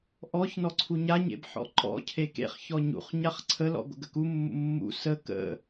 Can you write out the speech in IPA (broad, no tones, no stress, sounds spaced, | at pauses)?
ʔ ɔ ç n ɔ ǀʰ u ɲ a ɲ ḛ b ħ ɔ̰ ǃ ɔ̰ cʰ e k ḛ χ ç ɔ ɲ ṵ χ ɲ a χ ǀʰ ə l ɔ̰ ɡʷ ə̰ ɡ ə k u mː ṵ mː ṵ s ə k ə̰